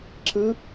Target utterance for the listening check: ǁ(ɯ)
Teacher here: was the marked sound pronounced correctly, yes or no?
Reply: yes